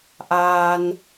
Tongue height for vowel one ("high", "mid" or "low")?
low